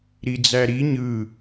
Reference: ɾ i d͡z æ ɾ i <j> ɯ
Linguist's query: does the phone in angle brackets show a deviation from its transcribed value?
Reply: yes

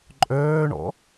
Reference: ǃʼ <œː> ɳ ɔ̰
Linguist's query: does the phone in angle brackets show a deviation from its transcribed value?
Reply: no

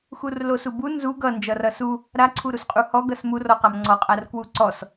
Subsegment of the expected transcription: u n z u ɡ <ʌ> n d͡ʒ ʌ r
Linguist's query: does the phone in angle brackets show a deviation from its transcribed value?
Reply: no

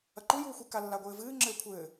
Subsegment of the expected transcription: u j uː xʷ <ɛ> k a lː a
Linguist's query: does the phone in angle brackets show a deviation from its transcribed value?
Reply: yes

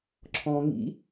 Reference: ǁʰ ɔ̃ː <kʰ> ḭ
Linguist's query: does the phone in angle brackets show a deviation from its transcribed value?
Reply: yes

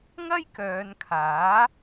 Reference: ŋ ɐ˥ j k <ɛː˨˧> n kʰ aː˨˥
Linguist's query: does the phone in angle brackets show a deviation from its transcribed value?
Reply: yes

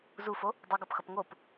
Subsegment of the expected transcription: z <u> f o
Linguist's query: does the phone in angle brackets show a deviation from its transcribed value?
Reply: no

